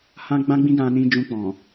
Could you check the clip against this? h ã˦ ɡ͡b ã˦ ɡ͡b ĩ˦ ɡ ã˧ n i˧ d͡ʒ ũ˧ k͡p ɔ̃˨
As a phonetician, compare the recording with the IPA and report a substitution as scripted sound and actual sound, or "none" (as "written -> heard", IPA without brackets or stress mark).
i˧ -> ĩ˧